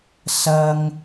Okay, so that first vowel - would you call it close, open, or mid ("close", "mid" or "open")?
open